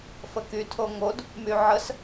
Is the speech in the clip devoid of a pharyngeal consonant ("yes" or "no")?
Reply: no